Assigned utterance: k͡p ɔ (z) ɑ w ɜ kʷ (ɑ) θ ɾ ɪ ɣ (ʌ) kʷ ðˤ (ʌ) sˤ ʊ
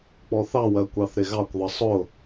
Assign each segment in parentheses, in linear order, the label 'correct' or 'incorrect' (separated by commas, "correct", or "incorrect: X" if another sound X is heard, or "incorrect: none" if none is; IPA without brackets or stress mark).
incorrect: θ, correct, incorrect: ɑ, correct